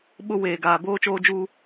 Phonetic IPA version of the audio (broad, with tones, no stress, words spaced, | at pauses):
ɓʊ˦ weː˨ɡaː˨ boː˦t͡ʃoː˦d͡ʒuː˦